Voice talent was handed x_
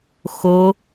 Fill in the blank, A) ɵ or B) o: B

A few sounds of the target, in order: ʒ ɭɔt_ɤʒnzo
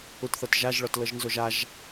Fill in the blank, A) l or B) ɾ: A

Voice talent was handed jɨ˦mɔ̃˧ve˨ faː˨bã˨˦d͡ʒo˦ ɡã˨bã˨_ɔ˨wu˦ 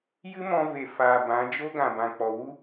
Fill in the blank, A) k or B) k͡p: B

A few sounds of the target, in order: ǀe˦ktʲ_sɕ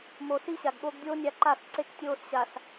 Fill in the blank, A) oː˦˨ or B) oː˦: A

